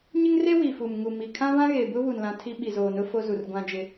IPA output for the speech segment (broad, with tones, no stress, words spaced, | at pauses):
ɲɪ˦ŋre˦ wi˨fu˨m ŋu˨mi˨ kʰã˦vã˦ɣe˨ bʊ˦βu˨nlã˨ tʰi˦ɓi˨zoː˨nʊ˦ fo˦zu˨rɡʷã˦d͡ʒɪ˦